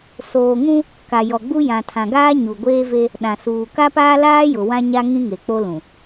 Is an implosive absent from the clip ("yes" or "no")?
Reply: no